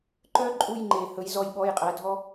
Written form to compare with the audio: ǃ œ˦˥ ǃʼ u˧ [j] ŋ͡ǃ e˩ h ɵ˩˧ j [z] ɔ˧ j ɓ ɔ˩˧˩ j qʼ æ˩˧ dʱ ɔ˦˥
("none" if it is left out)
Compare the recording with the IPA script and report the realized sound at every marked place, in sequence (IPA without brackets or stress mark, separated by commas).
j, z